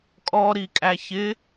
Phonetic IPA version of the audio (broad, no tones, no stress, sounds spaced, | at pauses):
kʼ ɔ ɾ i kʼ æ ç ɪ